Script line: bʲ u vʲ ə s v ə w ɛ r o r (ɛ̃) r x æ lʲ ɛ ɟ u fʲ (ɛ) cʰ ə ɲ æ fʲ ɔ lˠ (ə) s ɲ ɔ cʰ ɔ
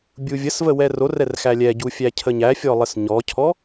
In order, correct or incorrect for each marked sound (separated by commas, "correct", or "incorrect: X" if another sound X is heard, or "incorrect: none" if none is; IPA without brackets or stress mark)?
incorrect: ɛ, incorrect: æ, correct